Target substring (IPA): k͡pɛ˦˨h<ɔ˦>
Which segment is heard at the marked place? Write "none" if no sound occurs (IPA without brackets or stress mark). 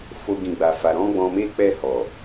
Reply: ɔ˨